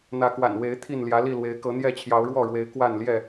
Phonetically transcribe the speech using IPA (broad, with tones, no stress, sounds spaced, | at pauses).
n̪ ä˨˦ k w a̰˨˩ n w e˨˦ ɪ̯ t̪ʰ i˥˨ n l j ä˨˦ l i˥˨ l w e˨˦ ɪ̯ k ɤ˨˦ n̪ j ɛ˥˨ t͡ɕʰ j ɑ˨˦ ʊ̯ ɻ w ɔ˥˨ ɻ w e˨˦ ɪ̯ k w a˥˨ n l j ɛ˥˨